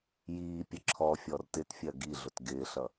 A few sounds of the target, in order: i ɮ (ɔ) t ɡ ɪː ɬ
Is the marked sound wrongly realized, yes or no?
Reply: yes